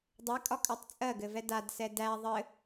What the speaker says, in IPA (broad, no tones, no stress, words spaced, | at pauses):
dˤɛkʼɒkʼatˤ t͡sʼɜɡɘvɛ dadsɛ dæ ðˤɘ